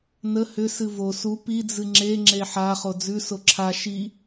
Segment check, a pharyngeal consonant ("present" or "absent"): present